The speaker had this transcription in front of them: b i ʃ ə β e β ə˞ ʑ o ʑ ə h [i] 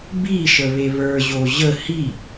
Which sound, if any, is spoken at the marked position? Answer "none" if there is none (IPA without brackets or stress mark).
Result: i